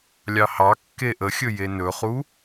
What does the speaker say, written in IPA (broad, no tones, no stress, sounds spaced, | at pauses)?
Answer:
lʲ ɑ h ɑ kː e ʔ ə xʲ ɵ j e n ɵ χ u